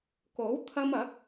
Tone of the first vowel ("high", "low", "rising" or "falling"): rising